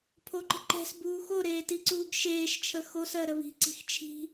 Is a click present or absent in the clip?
present